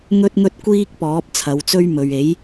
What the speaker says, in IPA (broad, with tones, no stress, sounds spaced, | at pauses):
ŋ ɵ˥ t̚ ŋ ɵ˥ t̚ kʷ iː˥ k̚ p ɔː˨˥ p̚ t͡sʰ ɐ˨˧ w t͡s ɵ˥ ɥ m ɵ˨ ɥ e˨˥ j